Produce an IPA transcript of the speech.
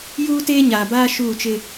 j uː˦ t eː˦ ɲ aː˨ b aː˦ ʃ uː˦˨ t͡ʃ ɪ˦

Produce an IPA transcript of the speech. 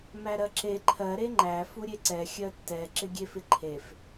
m æ ɾ ɜ ǁ e ǃʰ ɜ ɾ e ŋ͡ǃ æ f u ɾʲ e ǀ ɛ xʲ ɜ tː ɛ ǁ ɪ ɡʲ e f ɪ ǃʰ e f

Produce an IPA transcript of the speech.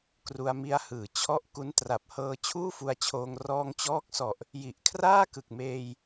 k r u˧ a̯ m i˧ a̯ h ɯː˩˦ t͡ɕʰ ɔ˥˩ ʔ k u˦˥ n t r a˨˩ p̚ h ɤː˧ t͡ɕʰ uː˥˩ f u˧ a̯ t͡ɕʰ oː˧ ŋ r ɔː˧ ŋ t͡ɕ ɔː˦˥ k̚ s ɔ˨˩ ʔ | j i˨˩ ʔ kʰ r aː˥˩ k ɯ˨˩ k̚ m eː˧ j

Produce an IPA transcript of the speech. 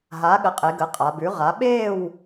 ɦ aː˩˥ ɠ ə˩˥ qʼ e˩˧ ɡ əː˩˧ qʼ a˩˧ b ʉ˩˥ ʁ a˩˥ ɓ eː˥˨ w

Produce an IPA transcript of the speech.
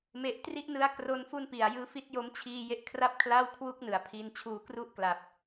m e˨˩ ʔ t r i˥˩ ʔ n ɯ˦˥ a̯ k r o˦˥ n f u˥˩ n p i˨˩ a̯ j ɯː˦˥ f i˦˥ t̚ j o˦˥ m t͡ɕʰ iː˧ j e˦˥ ʔ kʰ r a˥˩ p̚ kʰ l a˥˩ w kʰ w u˥˩ k̚ n ɯ˩˦ a̯ pʰ i˧ n t͡ɕʰ uː˧ k r u˥˩ ʔ k l a˨˩ p̚

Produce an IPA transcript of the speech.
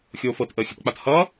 xʲ oː f ɤ t ʔ əː xʲ ə t k͡p a t h ʌː

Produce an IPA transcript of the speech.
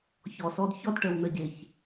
ç ɔ˨ s ɔ˧ d ç ɔ˦ d ʈ ə˨ w n ə˨ ɟ e˨ ç

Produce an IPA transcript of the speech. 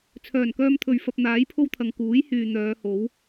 t͡sʰ œː˨˩ n k œː˧ m t̪ʰ ɵ˨ ɥ f ɐ˧ p̚ n̪ aː˨˥ j pʰ o˥ w t̪ʰ ɐ˨ ŋ k uː˨˥ j h yː˨ n̪ œː˨˧ h o˨˥ w

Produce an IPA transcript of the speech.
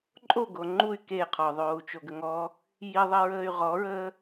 ǃʼ o ɡ o ŋ͡ǃ u y̯ k e qʰ ɔ ðˤ oː u̯ t͡ʃ o ɡ ə ŋ ɔ | j i ðˤ i ɹ əː y̯ ʁ ɔ ɹ əː

